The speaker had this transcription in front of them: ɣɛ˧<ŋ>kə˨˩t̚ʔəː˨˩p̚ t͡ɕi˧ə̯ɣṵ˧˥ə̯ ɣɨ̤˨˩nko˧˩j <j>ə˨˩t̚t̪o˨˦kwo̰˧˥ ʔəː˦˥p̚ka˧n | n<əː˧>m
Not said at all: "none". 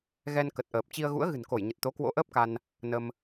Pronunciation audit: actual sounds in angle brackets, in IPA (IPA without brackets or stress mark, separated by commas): n, ɲ, ə˧